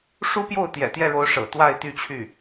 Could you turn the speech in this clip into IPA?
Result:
ʂ u˥ p j o˥˩ ʊ̯ t̪ j ɛ̰˨˩ t̪ j ɛ˥˩ ɻ o˧˥ ʊ̯ ʂ ɤ̰˨˩ t̪ w a˥˧ ɪ̯ t̪ y˥˧ t͡ɕʰ y˥˩

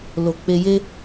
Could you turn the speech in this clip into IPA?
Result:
l o˧ k͡p e˧ j e˦

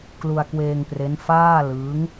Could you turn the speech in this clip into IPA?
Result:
k l u˧ a̯ k w eː˧ ŋ p r e˦˥ n f aː˥˩ l ɯː˦˥ ŋ

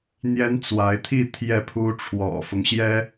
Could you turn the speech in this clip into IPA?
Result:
n̪ j ɛ˥ n t͡s w a˧˥ ɪ̯ t̪ʰ i˥˧ t̪ʰ j ɛ˥˩ pʰ u˥ ʈ͡ʂʰ w ɔ̰˨˩ f ʊ˦ ŋ ɕ j ɛ˥

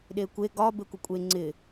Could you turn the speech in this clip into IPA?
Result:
ɗ e kʷ e ɡ ɒ b e kʷ ɪ kʷʼ e ŋ͡ǀ ɪ

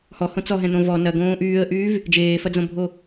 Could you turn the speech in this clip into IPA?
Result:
h ɔ h õ t͡s ɔ ɦ ɛ̃ n̪ õ v ɔ n ɐ ɡ õː ʔ yː ə̯ ʔ yː v | d͡ʒ eː f ɐ d͡z õ bʱ o

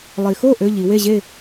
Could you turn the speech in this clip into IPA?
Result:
lˠ i˩ x o˥˨ ʔ ø˧˥˧ ʎ i˩˧ w e˥˨ ʑ e˥˨

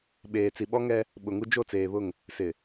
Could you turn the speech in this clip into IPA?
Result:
ɓ eː˨ t͡s i˨ ɓ ɔ˦ ŋ ɛ˦ | ɓ ʊ˨ ŋ u˦ d͡ʒ o˦˨ t͡s eː˨ β ʊ˦˨ ŋ | s ɪ˨

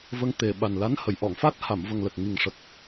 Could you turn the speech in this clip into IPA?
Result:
v ə˧ ŋ t̪ e˨˩ ɓ a˨˩ n l a˧˥ n h ə˨˩˨ j ʔ ɔ˨˩˨ ŋ f a˦˥ t̚ h a˨˩˨ m v ə˨˩ ŋ l ə˨˩ k̚ ŋ i˨˩ ŋ ʂ ə˨˩ k̚

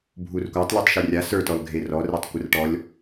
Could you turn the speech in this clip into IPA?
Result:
bʱ u r kʷ a tˤ lʲ o tˤ ʃ e rʲ a s ə˞ t ɔ l ɡʱ e r ɔ r e tˤ kʷ ə r ʈ ɔ lʲ

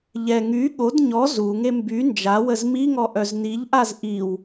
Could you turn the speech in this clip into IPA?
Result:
ʎ ɛ ŋ y ɠ o d ɲ ɔ z u ŋ e m b y n d͡ʒ a w ə z m i ŋ ɔ ʔ œ z n i ʎ ʔ a z ʔ i w

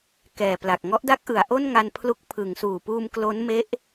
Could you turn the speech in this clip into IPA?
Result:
k ɛː˨˩ p l a˨˩ k̚ ŋ ɔ˦˥ ʔ d a˦˥ k̚ ʔ ɯ˩˦ a̯ ʔ o˥˩ n ŋ a˧ n pʰ l u˦˥ k̚ pʰ ɯ˩˦ ŋ s uː˨˩ p uː˧ m k l o˦˥ n m e˦˥ ʔ

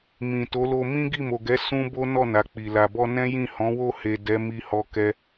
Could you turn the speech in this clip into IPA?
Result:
m ĩ˨ t o˨˦ l o˧ m ĩ˦ ɡ i˦˨ m o˨ ɡ ɛ˨˦ s ũ˦ b o˦ n ɔ˦˨ n a˨ k͡p i˨ l a˨ b ɔ˧ n ɛ̃˦ j ĩ˦˨ h ɔ̃˨˦ w o˦˨ h e˨ d ɛ˨˦ m i˧ h ɔ˦ k ɛ˦

